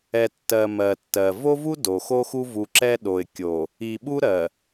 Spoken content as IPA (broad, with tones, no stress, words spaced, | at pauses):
ɛ˨ tːɜ˨ mɜ˨tːɜ˨ vo˦vu˦ do˨ xo˦xu˦vu˨ǁɛ˦ ɗo˨ɪ̯kʲo˨ | i˨ɓu˦ ɾɜ˨